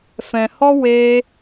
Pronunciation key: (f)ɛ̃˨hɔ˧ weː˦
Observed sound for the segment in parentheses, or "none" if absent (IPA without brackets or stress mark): f